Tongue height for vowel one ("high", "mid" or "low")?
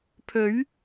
mid